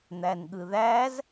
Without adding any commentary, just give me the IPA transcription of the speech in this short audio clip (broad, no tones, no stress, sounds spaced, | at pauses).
n̪ æ n ɠ ɯ ð æ z